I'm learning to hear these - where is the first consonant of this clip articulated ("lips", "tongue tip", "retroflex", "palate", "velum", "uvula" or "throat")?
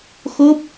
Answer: velum